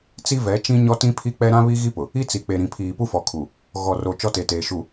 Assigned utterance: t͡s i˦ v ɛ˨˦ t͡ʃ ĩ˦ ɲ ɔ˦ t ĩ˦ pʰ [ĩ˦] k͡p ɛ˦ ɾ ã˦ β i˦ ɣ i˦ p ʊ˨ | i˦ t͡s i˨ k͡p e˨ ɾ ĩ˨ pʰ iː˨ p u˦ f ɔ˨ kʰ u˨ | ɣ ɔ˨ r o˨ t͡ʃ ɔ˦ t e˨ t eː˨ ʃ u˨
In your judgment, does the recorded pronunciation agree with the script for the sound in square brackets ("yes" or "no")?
no